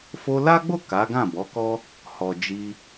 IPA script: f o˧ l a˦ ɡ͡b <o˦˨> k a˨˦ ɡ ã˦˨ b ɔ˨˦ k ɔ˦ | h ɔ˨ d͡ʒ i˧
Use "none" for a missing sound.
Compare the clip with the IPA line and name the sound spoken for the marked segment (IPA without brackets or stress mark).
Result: o˦˨